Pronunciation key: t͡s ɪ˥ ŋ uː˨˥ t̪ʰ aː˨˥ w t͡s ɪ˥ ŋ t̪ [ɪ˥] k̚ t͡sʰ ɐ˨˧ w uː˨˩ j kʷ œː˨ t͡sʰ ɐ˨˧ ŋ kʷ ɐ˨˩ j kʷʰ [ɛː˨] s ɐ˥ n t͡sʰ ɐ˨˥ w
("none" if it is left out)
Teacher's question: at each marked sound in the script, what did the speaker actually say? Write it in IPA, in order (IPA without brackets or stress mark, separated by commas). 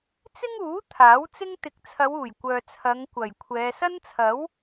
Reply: ɪ˨˥, ɛː˨˧